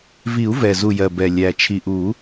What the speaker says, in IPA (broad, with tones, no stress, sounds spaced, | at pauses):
v i˨˩˦ u̯ v ɛ˨˩ z u˨˩ j ɜ˨˩ b ɛ˨˩ lʲ æ˨˩ t͡ʃʰ i˨˩ ʔ u˨˩˦